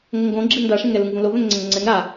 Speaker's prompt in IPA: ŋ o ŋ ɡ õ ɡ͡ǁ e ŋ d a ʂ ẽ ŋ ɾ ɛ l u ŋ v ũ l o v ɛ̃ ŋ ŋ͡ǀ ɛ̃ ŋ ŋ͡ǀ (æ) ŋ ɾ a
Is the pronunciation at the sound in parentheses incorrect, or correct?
incorrect